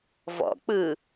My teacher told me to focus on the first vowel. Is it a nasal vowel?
no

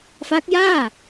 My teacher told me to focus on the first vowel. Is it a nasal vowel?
no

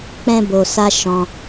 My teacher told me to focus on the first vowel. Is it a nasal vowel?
yes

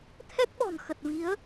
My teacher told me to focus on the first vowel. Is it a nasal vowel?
no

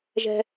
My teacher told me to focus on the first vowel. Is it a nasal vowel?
no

